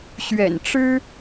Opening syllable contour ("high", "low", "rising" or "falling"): low